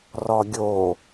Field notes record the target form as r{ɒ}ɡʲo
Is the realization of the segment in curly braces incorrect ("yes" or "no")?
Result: no